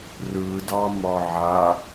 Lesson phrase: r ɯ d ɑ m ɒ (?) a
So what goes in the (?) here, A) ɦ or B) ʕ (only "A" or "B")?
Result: B